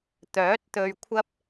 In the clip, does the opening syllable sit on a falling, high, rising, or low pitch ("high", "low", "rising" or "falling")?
rising